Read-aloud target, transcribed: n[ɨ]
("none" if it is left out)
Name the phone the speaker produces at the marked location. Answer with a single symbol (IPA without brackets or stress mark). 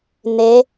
e